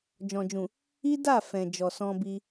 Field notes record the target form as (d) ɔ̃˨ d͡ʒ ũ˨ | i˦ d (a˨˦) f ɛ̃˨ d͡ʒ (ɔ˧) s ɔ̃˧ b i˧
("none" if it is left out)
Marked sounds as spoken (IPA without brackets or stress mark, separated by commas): d͡ʒ, a˦˨, ɔ˨